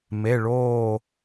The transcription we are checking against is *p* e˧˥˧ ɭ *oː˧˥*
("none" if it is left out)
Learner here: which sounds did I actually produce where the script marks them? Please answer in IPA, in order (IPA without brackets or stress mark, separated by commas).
m, oː˥˧